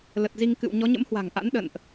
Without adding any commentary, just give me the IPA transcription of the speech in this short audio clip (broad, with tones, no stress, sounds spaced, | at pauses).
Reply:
l ə˨˩ t̚ z i˧ ŋ k ɨ̰˧˨ w ɲ ɔ˨˦ ɲ ə̰˧˥ m h w a̤˨˩ ŋ ʔ a̰˧˥ n ɗ ə̰˧˨ n ʔ